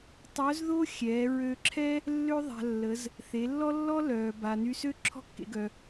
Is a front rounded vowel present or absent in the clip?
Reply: present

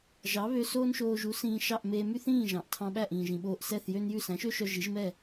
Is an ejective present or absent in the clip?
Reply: absent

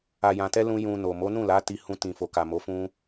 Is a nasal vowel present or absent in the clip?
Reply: present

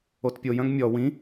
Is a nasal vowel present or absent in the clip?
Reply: present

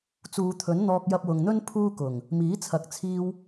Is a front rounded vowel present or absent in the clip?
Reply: absent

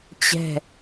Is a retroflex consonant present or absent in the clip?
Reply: absent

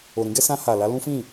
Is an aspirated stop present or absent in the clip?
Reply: absent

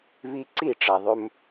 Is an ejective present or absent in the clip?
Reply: absent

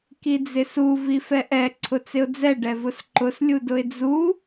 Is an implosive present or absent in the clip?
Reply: absent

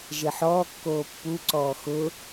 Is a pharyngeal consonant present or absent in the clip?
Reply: present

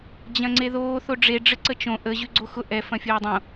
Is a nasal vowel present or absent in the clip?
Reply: present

